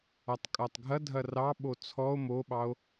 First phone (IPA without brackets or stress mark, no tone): a